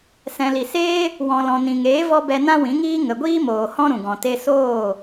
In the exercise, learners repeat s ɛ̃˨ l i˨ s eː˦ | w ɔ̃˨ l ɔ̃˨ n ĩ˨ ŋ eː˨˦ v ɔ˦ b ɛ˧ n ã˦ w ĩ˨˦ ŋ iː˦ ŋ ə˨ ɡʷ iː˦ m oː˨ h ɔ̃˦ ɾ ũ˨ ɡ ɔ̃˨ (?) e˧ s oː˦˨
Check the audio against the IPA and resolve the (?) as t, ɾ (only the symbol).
t